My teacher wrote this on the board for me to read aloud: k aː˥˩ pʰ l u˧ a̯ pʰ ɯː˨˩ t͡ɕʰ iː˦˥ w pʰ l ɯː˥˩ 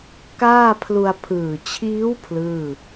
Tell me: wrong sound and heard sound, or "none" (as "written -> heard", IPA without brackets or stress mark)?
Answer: none